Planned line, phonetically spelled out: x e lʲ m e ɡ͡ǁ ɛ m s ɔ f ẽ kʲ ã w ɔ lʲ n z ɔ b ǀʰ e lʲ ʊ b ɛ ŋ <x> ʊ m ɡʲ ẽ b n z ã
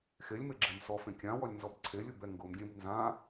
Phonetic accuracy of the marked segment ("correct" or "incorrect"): incorrect